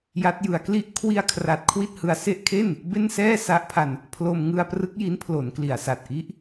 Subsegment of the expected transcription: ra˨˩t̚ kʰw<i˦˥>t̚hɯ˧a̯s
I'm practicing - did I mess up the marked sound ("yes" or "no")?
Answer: yes